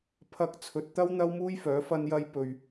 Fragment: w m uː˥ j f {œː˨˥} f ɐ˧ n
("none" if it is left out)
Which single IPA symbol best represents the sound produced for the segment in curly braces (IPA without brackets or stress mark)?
œː˨˥